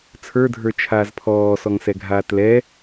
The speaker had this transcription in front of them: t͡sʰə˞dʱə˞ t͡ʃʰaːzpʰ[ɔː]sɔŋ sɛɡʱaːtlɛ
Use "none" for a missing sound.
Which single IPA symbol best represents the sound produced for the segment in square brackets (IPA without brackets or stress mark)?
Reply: ɔː